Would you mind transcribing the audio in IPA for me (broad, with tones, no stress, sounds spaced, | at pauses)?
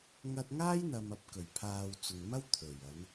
ŋ ɐ˧ t̚ ŋ aː˥ j n̪ ɐ˨ m ɐ˨˥ p̚ k ɵ˨˩ ɥ pʰ aː˨ w t͡s ʊ˨ ŋ m ɐ˥ w t̪ʰ ɵ˨˩ ɥ ɐ˨˧ n